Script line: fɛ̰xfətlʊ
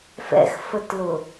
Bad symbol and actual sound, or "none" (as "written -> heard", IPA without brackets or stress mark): none